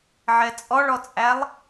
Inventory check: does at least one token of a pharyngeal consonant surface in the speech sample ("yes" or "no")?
yes